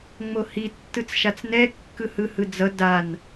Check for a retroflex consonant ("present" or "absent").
absent